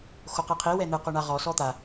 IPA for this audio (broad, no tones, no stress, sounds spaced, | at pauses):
x o q i qʰ i w ɛ n̪ ɯ q o ɳ a ʁ ɔ s ɔ t̪ a